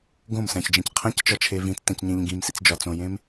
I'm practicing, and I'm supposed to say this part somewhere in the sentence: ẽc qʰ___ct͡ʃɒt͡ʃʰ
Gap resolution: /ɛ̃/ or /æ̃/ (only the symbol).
æ̃